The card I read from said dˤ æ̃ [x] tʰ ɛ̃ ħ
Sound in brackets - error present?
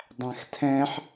no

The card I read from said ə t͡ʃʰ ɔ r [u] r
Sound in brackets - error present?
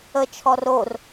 yes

